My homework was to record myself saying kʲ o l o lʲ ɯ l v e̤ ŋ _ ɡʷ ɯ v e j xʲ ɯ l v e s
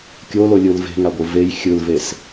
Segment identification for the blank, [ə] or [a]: a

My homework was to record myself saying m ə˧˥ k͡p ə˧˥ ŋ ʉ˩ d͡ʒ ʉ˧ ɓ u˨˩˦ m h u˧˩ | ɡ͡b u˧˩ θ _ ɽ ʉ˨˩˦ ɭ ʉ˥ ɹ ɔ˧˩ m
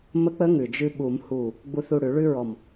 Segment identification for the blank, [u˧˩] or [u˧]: u˧˩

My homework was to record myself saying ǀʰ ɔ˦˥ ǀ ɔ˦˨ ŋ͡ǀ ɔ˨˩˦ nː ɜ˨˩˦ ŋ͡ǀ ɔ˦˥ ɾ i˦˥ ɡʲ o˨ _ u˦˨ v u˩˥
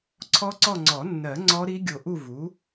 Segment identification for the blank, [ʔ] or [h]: ʔ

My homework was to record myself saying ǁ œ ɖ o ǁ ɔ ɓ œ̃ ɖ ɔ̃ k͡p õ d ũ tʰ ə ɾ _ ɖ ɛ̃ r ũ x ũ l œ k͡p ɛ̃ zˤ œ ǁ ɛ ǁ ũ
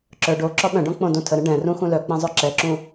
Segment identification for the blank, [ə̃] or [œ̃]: ə̃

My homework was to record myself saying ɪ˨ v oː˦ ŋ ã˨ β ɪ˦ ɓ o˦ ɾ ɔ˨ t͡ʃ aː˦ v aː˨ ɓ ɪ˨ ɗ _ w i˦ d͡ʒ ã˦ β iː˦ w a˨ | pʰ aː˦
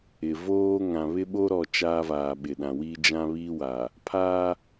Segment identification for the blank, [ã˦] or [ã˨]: ã˨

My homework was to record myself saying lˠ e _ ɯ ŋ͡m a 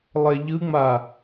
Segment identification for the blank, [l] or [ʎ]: ʎ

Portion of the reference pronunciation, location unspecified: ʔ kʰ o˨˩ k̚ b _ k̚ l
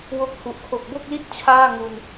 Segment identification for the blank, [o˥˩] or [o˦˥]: o˥˩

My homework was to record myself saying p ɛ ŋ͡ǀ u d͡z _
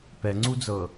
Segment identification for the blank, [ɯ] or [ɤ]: ɤ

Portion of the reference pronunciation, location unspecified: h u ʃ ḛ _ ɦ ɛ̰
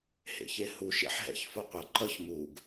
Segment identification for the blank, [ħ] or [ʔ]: ħ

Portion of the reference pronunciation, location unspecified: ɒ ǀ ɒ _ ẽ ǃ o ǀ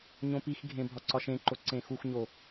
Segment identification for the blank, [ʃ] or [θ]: ʃ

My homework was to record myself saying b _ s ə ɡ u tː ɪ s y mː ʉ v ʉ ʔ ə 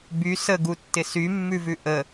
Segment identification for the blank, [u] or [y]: y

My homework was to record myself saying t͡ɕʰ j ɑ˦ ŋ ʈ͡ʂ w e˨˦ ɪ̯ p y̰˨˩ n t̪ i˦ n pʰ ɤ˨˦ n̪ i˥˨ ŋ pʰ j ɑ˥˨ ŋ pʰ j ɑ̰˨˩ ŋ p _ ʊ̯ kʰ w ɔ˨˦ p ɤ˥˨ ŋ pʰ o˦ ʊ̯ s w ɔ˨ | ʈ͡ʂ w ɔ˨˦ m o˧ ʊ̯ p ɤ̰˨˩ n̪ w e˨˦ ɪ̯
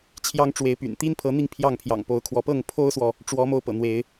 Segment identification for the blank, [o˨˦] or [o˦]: o˨˦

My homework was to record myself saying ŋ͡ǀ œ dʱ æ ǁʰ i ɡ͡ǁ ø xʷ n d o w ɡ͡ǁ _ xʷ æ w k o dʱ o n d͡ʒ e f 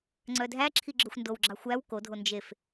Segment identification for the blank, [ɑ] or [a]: ɑ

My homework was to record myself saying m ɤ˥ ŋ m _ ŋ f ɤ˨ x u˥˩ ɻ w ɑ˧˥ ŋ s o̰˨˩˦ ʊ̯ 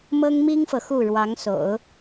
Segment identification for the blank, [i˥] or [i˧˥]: i˥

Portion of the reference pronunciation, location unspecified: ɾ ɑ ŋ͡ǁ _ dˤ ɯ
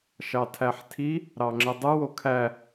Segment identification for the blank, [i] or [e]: e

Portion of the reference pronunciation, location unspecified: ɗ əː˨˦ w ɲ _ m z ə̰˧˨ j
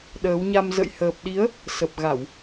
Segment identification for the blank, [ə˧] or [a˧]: a˧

